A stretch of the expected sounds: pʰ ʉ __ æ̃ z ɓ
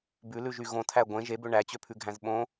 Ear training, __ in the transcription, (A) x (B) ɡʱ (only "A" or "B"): B